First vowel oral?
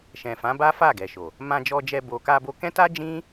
no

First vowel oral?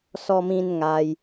yes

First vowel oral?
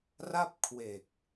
yes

